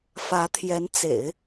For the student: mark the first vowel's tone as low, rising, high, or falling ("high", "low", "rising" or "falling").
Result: rising